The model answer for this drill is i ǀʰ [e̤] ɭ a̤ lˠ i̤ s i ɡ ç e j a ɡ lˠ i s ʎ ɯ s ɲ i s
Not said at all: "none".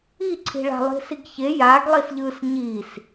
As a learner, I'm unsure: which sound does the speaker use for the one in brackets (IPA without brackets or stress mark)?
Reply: i̤